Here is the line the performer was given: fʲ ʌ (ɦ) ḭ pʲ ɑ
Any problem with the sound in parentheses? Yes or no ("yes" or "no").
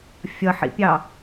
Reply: yes